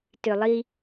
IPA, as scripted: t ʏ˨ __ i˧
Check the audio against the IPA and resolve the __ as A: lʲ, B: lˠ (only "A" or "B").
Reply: B